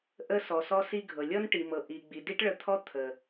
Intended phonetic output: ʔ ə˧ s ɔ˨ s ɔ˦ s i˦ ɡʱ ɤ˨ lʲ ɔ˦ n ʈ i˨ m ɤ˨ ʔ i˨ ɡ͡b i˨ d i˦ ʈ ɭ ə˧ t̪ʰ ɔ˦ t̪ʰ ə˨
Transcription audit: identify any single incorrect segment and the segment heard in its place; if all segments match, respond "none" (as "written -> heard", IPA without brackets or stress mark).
none